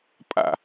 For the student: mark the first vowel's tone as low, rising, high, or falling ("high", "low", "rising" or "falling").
falling